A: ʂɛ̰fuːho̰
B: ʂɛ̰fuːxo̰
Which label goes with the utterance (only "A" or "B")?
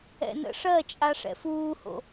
A